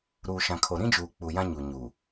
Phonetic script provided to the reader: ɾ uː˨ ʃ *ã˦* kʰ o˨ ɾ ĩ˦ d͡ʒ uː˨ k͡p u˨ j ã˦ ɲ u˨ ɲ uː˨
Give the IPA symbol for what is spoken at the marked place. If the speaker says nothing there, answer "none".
ã˨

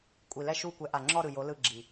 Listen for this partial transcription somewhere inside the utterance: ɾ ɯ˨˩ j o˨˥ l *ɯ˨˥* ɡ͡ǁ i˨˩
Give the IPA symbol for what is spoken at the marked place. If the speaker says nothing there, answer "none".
ɯ˦˨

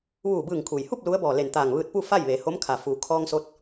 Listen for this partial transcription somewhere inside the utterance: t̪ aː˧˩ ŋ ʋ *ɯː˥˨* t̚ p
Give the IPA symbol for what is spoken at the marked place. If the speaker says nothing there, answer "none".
ɯː˧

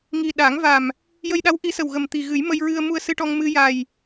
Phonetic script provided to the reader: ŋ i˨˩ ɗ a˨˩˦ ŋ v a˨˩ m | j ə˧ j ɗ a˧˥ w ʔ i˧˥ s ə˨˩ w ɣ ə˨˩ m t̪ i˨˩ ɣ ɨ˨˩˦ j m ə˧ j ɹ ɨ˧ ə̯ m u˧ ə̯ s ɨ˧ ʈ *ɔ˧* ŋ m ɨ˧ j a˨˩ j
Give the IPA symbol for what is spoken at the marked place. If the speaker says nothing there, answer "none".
ɔ˧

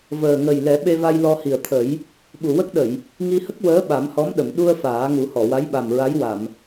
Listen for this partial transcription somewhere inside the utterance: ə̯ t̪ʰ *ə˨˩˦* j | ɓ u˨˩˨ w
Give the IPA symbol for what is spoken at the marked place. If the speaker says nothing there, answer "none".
ə˨˩˦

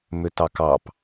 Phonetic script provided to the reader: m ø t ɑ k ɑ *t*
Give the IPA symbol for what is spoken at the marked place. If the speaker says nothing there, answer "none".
p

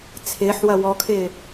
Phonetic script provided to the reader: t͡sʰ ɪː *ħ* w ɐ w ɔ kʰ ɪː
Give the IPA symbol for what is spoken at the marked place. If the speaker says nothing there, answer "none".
ħ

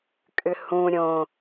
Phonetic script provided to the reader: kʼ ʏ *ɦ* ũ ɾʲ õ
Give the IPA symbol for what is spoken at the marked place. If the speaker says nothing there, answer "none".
h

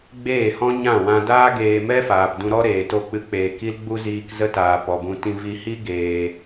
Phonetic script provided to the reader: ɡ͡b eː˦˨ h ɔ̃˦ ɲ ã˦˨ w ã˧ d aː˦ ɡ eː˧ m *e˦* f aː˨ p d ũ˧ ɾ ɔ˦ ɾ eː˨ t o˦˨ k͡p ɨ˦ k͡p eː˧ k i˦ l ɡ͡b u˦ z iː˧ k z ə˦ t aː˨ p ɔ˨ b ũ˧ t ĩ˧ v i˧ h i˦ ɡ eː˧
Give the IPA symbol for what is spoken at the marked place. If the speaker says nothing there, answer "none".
ɛ˦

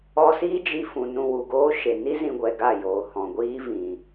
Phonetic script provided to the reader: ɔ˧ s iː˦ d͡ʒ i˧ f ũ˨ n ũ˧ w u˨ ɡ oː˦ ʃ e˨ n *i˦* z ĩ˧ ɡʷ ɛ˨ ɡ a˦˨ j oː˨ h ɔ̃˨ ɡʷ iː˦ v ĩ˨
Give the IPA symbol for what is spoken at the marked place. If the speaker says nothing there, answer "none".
i˦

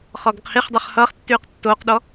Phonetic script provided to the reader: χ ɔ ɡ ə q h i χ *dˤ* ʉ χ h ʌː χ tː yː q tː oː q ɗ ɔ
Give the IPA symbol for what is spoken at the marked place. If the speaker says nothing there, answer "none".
dˤ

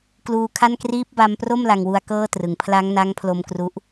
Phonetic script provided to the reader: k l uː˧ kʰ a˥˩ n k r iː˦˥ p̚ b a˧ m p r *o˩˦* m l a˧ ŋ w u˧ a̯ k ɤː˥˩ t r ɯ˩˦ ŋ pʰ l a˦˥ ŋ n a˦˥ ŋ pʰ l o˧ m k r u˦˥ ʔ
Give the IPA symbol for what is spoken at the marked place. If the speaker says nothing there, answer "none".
o˥˩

